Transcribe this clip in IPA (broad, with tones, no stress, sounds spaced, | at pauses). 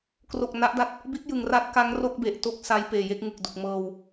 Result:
k r o˨˩ k̚ n a˦˥ ʔ d a˥˩ t̚ | b i˦˥ t̚ j ɯ˨˩ ŋ r a˦˥ t̚ k a˦˥ ŋ r o˥˩ k̚ b e˨˩ ʔ t o˥˩ k̚ s a˦˥ j p eː˨˩ j e˥˩ k̚ ŋ ɯ˨˩ k̚ d u˨˩ k̚ m ɤː˧ w